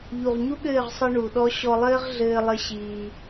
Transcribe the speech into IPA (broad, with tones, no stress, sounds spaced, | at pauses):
ʎ u˨ ʁ ɲ u˦ ɠ ɘː˦˨ ʁ sˤ ɨ˧ ɳ u˨ ɗ ɔ˦ ɕ ɔ˧ lˠ ɘː˦ ʁ ɮ ɘː˧ lˠ ɘ˧ ɕ iː˧